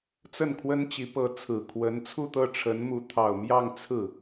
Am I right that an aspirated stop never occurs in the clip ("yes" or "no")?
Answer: no